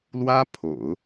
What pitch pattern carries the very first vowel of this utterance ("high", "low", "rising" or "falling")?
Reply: high